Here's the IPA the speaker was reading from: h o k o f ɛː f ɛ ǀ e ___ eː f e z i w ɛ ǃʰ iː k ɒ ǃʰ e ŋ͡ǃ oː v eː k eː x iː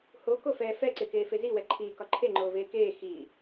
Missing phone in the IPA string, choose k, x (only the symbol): k